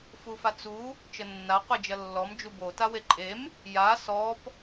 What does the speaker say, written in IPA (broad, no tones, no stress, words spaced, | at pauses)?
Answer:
fufat͡su | t͡ʃənːa qʷed͡ʒɐlːɔm d͡ʒubo taweǃʼem | ja sɔp